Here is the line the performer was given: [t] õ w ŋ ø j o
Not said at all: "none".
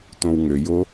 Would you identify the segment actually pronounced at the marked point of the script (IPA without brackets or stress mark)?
t